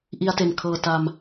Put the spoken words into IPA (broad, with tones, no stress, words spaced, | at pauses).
ʔi˧a̯te˨˩nkʰɤː˧ ta˧m